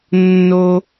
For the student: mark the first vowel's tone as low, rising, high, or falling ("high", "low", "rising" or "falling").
high